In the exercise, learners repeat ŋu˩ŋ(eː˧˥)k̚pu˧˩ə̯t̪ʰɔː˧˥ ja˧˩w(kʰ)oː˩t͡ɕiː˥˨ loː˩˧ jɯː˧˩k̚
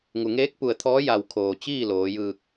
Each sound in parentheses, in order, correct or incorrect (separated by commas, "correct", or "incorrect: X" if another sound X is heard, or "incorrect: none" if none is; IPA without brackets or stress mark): correct, correct